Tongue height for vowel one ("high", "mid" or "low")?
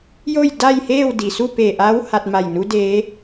mid